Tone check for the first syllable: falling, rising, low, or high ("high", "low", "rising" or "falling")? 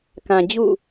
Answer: low